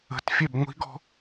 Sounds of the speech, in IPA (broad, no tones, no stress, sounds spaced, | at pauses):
ə̤ t fʲ ɛ b ŋʷ i̤ ɡ ɔ̤